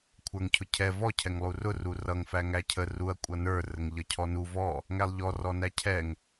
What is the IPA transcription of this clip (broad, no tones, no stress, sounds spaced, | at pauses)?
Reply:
kʷʰ ə˞ ŋ cʰ ʊ cʰ ɛ v ɔ cʰ ɛ ŋ lˠ u r ʊ r u r ʌ ŋ f æ ŋ æ cʰ ə r u ɐ̯ kʷʼ ʌ n ə˞ r ə ŋ ʎ ʌ cʰ ɔ n u v ɔ | ŋ æ lˠ ʎ ɔ r ɔ n æ cʰ ɛ ŋ